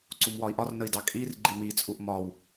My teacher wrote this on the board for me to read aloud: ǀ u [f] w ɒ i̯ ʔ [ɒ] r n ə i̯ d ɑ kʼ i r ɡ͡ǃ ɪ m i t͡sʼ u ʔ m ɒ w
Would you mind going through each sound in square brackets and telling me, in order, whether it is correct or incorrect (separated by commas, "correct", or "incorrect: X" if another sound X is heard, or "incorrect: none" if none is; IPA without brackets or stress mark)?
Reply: incorrect: m, correct